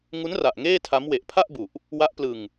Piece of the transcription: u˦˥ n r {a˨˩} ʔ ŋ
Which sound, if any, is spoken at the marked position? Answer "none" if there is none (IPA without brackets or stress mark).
a˨˩